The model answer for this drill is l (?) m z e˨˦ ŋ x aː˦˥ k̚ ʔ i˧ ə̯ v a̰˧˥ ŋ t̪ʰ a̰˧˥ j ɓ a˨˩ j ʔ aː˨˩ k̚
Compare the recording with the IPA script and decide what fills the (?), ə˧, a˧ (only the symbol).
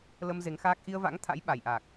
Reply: ə˧